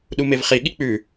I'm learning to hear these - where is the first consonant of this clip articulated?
tongue tip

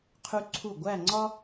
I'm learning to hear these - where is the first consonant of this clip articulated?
uvula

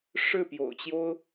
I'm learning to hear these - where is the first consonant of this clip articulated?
retroflex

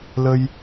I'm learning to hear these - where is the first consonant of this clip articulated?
tongue tip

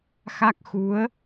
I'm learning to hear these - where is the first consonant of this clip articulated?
velum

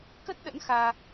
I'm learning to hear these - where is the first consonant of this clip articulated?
velum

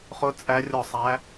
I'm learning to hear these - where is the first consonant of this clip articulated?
uvula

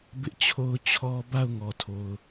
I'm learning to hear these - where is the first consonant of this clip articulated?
lips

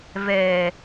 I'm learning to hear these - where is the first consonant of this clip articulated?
lips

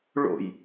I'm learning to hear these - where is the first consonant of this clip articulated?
retroflex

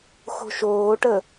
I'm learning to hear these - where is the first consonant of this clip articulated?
velum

